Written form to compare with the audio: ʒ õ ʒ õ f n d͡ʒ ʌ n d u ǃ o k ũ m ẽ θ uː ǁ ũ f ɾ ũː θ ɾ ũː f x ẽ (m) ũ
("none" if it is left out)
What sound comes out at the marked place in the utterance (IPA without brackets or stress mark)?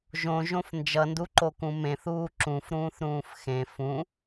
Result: f